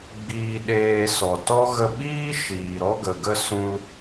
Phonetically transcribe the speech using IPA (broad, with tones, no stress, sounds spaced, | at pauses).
ɡ͡b iː˧ ɗ eː˧ s ɔ˨ t ɔ˦ ɣ ə˧ ɓ iː˦ ʃ iː˨ ɾ ɔ˦ ɡ ə˨ ɡ ə˦ s ũ˧ l